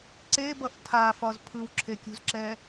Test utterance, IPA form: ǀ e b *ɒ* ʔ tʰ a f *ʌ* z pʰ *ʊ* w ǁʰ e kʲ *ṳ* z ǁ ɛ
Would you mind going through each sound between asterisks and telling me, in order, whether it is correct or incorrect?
incorrect, incorrect, incorrect, correct

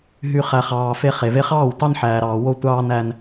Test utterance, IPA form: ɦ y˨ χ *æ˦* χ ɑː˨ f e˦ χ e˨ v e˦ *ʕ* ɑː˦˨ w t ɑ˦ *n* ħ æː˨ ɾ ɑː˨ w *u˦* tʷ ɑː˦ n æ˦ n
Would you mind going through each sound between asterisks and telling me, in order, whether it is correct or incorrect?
incorrect, incorrect, correct, incorrect

